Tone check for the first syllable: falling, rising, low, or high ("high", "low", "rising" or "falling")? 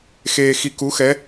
low